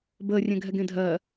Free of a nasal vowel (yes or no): no